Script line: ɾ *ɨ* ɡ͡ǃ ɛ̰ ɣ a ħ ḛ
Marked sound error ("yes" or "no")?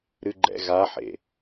no